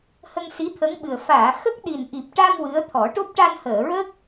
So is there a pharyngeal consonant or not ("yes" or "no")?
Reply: no